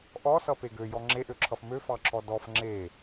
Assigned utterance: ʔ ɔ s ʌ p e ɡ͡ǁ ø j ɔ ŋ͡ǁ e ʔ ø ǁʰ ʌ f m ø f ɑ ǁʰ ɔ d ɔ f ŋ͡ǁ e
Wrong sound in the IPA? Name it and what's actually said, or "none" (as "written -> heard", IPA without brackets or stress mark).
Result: ɡ͡ǁ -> ɡ